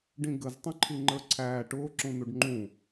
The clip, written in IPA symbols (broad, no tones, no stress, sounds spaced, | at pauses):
ɖ ĩ ɡ ə z tˤ ũ ǃʰ i ŋ͡ǃ ə˞ ǀʰ æː ʈ ʊː ǁ ũ n u ɖ ŋ͡ǃ ũ